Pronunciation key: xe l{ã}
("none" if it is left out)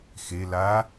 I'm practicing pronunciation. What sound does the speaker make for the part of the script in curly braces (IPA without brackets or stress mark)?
a